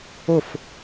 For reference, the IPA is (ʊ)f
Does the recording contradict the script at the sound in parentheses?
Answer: no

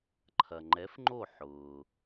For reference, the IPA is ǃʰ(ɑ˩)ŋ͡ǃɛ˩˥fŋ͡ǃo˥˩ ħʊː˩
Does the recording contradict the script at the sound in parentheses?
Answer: yes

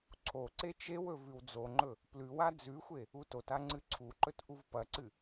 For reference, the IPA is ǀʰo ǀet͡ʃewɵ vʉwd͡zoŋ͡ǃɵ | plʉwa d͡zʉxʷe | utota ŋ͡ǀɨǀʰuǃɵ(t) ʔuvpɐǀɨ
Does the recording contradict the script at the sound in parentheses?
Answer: no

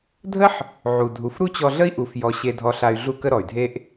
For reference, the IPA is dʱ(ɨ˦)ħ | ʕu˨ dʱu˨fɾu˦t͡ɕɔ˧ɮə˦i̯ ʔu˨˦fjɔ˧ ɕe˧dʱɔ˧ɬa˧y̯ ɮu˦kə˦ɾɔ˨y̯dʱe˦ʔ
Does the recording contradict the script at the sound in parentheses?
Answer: yes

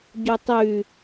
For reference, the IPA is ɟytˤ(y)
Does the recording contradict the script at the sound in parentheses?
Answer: no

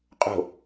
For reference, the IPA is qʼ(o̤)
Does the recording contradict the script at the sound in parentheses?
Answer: no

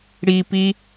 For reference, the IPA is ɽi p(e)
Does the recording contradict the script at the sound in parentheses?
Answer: yes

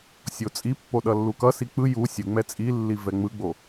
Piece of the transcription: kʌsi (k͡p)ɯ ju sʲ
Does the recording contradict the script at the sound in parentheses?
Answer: no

